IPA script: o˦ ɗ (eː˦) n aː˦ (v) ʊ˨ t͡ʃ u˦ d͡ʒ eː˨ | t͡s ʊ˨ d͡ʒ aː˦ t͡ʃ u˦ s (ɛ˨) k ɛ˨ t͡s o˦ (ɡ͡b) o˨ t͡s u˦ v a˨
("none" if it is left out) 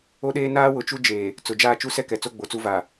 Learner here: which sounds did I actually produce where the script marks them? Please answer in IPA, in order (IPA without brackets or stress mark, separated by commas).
eː˦, w, ɛ˦, ɡ͡b